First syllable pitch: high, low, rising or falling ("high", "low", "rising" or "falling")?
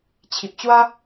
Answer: low